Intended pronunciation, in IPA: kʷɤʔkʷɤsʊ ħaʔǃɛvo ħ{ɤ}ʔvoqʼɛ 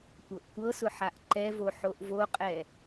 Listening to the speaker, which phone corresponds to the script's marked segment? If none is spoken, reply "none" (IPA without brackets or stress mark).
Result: o